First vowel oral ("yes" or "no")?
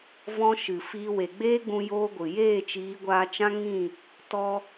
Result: no